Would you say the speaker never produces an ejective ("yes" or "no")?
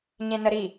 yes